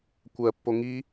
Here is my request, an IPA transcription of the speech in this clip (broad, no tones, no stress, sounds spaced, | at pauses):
kʷ ɜ pː o ŋ i